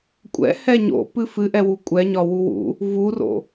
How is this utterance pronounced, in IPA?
kʷʼ ɛ̰ h ɛ ɲ o̰ p ɨ f ɨ ʔ ɛ w u kʷʼ ɛ ɲ ɒ w u w ṵ | v u r o̰

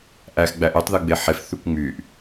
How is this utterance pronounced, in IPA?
ʔ æ x ɡ͡b æ ʔ y tˤ ð ɯ ɡ͡b e ħ e f θ y kʷ ŋ͡m y ʔ

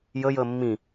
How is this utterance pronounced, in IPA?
j ə j əː mː ĩ

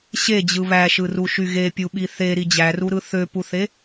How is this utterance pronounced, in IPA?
ɕ e d͡ʑ ɯ β æ ʃ ɯ r u ʃ y ɣ e pʲ u ɓ i θ e ɾ i d͡ʑ æ r u ɾ ɯ θ ø p u θ e

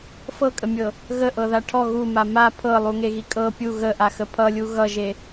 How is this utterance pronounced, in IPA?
f ɤ kʼ ə mʲ ɤ | ɣ ə ʔ ɤ ð a ʈʰ ɔ ɣ u m a m a pʰ ɤ lˠ u ŋ e ɣ i kʼ ɤ pʲ u ɣ ə ʔ a x ə pʰ ʌ lʲ u ɣ ʌ ʒ e

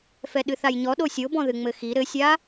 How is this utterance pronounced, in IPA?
f ɛ ɗ ɨ θ a j ɲ ɔ ɗ o sʲ o b ɔ̃ ð ɨ ŋ͡m ɘ x i ɾ ɘ sʲ a

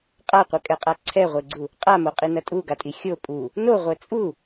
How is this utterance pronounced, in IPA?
qʼ a qʷ ɘ kʼ ɛ qʼ a ǀʰ ɛ ʁʷ e ɡ͡ǀ u | qʼ a m o qʼ i n ɐ tʼ u ɡ a tʼ i xʲ o pʼ u | n o ʁʷ ɛ t͡sʼ u

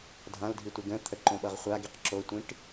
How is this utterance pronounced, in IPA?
dʱ ã l dʱ i tʷ i ɡ ə̃ t̪ʰ ə ǃ õ ɓ ʌ ʁ χʷ a ɡ i q ǁ o tʷ ĩ ʈ

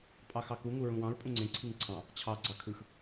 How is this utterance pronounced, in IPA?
pʼ ɑ x ɑ k u ŋ u ɹ ũ w ɑ̃ ɹ pʼ ũ ŋ͡ǀ ẽ ǀʰ i ŋ ǀʰ ɑ̃ | t͡ɕʰ ɑ ɡ͡ǀ ɑ kʰ ɯ x

